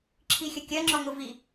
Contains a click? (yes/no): yes